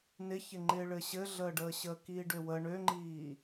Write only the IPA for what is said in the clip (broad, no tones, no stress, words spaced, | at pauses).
nɪçɪŋ͡ǃɪː ɭɘɕɘɮəːɖəː ɕəːkiːɖøwə ɳøŋ͡ǃiː